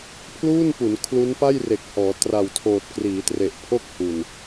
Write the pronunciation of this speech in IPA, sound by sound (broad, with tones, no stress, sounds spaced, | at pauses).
pʰ l uː˥˩ n p u˩˦ n kʰ l u˦˥ n p a˥˩ j r e˨˩ k̚ h ɔː˩˦ t r a˨˩ w tʰ oː˨˩ t̚ k r iː˩˦ t r e˨˩ ʔ pʰ o˥˩ k̚ h u˨˩ n